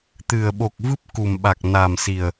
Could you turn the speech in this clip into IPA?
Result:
t̪ ɨ˨˩ ə̯ ɓ o˨˩ k̚ v ɨ˦˥ p̚ k u˨˩ m ɓ a˨˩ k̚ n a˨˩ m s i˨˩ ə̯

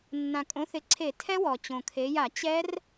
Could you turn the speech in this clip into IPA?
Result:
nː ã˩ kʼ õ˩˥ θ ɪ˩˧ ǀʰ e˧˩˧ tʰ ɛ˦˥ w ɔ˩ t͡ɕ õ˩ kʰ e˩˧ j a˧˩˧ t͡ɕ ɛ˦˥ r

